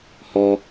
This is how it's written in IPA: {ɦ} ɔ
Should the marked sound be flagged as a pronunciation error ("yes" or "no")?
yes